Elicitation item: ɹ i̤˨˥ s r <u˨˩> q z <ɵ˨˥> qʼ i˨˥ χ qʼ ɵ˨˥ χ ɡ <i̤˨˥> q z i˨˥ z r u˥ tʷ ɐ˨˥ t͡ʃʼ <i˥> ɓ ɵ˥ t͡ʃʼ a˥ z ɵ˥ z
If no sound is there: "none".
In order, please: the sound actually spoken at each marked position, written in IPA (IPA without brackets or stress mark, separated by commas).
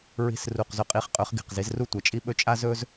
u˨˩, ɵ˨˥, i̤˨˩, i˥